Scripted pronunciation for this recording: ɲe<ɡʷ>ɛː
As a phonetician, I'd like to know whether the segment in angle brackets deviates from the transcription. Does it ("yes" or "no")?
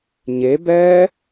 yes